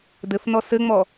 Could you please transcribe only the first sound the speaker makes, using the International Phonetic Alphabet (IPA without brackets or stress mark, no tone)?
d